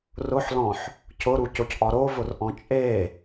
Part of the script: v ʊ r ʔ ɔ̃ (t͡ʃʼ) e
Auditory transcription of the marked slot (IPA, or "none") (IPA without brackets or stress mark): t͡ʃʼ